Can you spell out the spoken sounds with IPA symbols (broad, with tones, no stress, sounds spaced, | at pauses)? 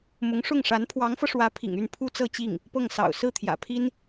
m ʊ˧˥ ŋ ʂ ʊ˥˩ ŋ ʂ a˧˥ n pʰ w ɑ˧˥ ŋ f ɤ˧ ʂ w ä˧˥ pʰ ḭ˨˩ ŋ y˥˩ n pʰ u˥ t͡s ɤ˥˧ t͡ɕ i˥˩ ŋ | p ɤ˥˩ ŋ s ɑ̰˨˩ ʊ̯ s ɹ̩˥˩ t̪ʰ j ä̰˨˩ pʰ i˥ n